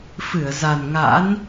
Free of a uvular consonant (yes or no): yes